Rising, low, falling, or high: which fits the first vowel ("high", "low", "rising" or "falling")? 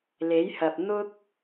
rising